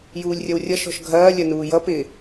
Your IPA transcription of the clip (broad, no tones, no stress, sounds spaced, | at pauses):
j uː lʲ rʲ ʌ w rʲ ʌ ʃ ɔ̤ ʃ ɡʱ ɐː lʲ ɐ n uː j ʌ p ɪː